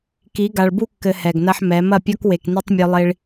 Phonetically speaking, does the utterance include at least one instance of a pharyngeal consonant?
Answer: yes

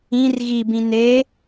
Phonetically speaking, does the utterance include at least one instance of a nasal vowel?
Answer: yes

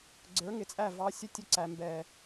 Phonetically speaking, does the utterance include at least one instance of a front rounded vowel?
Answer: no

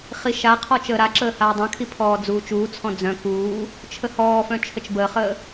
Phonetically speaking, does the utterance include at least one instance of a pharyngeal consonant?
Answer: no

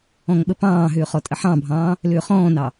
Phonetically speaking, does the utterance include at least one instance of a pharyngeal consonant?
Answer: yes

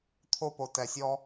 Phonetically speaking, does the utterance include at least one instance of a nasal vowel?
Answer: no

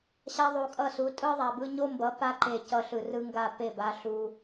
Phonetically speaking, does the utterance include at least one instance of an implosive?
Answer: no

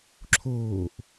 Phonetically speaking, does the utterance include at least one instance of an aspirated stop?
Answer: yes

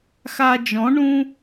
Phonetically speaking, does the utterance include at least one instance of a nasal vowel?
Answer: yes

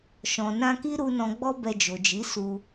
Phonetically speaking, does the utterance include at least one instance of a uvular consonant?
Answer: no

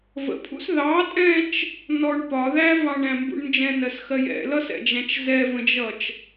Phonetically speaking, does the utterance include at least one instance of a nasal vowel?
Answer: yes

